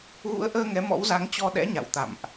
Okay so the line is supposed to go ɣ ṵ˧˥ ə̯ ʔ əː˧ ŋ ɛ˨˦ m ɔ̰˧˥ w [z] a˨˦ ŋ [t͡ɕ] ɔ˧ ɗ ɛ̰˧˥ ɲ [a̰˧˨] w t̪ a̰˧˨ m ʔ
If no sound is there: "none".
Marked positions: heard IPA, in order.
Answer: z, t͡ɕ, a̰˧˨

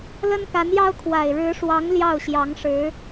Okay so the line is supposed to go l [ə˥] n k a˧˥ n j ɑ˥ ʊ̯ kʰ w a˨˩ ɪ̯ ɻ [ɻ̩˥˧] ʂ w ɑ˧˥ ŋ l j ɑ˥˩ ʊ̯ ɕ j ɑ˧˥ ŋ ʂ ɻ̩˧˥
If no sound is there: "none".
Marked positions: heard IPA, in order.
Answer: ə˥, ɻ̩˧˥

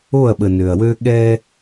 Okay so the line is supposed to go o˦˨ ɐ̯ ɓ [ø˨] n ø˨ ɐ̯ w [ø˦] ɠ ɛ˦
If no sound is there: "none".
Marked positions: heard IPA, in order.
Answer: ə˨, ø˦

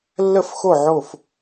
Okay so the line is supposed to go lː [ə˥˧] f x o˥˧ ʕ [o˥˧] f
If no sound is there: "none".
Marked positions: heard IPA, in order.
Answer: ə˥˧, o˥˧

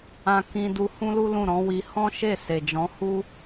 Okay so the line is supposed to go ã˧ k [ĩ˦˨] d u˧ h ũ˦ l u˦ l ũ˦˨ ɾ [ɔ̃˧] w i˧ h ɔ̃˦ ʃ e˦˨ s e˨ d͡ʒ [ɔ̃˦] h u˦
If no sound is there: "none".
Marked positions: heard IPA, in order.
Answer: ĩ˧, ɔ̃˨˦, ɔ̃˨˦

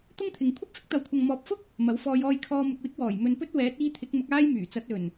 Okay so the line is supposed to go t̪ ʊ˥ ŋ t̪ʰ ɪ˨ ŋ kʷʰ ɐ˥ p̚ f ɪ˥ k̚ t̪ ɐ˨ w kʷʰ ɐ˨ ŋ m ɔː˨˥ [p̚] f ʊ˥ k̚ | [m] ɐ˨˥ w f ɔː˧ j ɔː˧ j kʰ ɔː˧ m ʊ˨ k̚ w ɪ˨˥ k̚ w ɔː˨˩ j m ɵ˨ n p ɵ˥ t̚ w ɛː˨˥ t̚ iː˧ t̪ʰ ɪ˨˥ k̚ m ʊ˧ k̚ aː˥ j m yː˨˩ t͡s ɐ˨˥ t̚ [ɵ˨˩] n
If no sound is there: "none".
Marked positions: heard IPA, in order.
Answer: p̚, m, ɵ˨˩

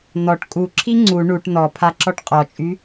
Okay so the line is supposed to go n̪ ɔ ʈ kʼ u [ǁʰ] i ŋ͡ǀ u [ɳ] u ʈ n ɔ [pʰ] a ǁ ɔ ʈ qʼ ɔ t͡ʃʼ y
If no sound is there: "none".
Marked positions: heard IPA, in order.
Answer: ǁʰ, ɳ, pʰ

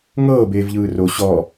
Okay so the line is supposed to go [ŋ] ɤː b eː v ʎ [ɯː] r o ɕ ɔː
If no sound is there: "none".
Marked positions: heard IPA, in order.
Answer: ŋ, ɯː

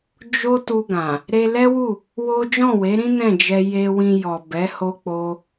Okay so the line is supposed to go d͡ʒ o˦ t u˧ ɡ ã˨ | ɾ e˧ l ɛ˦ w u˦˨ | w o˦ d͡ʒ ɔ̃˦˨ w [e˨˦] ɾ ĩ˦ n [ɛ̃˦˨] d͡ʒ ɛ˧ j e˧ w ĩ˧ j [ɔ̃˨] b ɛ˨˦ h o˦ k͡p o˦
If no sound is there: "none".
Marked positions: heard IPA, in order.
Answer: e˨˦, ɛ̃˦˨, ɔ˨

